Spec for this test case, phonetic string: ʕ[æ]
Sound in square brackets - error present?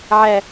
no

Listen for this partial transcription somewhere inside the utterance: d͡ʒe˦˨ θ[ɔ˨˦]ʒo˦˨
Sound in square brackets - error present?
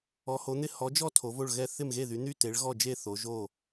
yes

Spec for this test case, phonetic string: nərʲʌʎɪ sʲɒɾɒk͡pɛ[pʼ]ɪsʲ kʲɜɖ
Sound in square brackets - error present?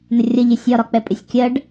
no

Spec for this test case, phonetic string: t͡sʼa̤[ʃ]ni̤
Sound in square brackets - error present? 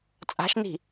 no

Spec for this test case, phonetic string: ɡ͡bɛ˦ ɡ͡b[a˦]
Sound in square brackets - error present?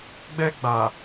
yes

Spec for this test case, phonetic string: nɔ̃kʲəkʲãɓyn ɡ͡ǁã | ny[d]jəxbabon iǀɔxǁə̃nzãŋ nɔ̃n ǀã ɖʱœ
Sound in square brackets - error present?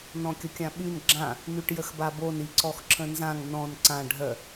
yes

